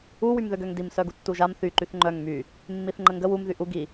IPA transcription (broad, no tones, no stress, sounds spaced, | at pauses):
u w y m ð ø ɡ ø ŋ d i m s œ ɡ u tː u ʒ a m θ y ǃ y θ ŋ͡ǃ œ ŋ m y | mː i θ ŋ͡ǃ ə ŋ ɡ ə w u m ð y ʔ u ɡ i